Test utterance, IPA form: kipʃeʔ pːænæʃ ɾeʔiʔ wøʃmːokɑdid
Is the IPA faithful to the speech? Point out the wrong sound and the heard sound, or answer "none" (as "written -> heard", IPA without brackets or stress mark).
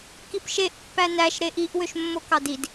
none